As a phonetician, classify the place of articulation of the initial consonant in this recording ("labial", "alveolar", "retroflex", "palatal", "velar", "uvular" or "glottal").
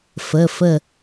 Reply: labial